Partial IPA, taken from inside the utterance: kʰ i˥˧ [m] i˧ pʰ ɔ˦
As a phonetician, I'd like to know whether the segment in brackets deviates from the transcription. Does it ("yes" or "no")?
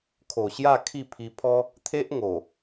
yes